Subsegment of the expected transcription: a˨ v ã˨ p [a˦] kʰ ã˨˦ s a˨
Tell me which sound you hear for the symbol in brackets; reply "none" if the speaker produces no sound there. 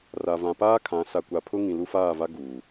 aː˦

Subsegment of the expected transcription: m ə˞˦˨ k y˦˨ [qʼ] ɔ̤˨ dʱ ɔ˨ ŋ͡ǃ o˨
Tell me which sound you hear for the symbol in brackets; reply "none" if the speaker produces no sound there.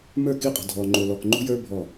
qʼ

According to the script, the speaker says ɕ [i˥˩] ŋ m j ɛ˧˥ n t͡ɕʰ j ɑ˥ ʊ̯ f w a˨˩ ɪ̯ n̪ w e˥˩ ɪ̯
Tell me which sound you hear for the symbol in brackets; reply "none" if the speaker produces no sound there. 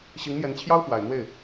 i˧˥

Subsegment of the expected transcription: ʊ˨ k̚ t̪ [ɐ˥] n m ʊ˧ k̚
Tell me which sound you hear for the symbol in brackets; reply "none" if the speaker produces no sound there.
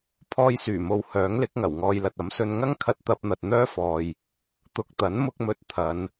ɐ˨˥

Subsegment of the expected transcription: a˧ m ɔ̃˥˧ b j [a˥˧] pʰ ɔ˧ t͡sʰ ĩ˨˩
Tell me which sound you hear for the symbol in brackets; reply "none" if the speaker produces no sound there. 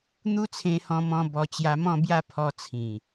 a˥˧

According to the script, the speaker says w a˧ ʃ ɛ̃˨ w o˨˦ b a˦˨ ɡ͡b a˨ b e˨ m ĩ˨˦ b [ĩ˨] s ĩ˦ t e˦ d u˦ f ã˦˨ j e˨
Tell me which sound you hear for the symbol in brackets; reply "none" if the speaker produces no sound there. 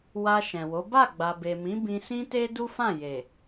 ĩ˧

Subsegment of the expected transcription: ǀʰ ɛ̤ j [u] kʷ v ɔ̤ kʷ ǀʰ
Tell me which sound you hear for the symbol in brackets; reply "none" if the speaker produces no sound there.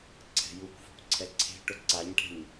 u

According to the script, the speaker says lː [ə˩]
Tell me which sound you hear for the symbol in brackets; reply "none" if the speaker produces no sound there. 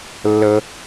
ə˥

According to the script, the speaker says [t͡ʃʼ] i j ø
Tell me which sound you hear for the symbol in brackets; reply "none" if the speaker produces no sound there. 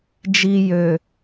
d͡ʒ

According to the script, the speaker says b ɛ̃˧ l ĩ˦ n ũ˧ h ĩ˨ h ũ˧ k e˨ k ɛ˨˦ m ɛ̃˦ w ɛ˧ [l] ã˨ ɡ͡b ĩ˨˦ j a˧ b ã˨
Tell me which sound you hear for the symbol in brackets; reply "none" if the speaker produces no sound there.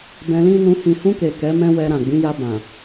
ɾ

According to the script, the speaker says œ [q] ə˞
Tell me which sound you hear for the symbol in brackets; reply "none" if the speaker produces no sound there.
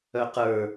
q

